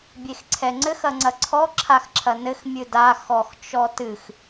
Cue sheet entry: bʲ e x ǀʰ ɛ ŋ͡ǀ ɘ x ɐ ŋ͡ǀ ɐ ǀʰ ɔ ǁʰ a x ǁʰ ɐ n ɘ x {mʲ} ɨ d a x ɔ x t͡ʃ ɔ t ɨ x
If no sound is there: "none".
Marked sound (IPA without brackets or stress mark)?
mʲ